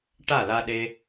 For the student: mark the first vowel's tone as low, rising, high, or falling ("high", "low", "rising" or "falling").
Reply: falling